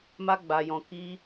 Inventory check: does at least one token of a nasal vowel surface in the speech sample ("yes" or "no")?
yes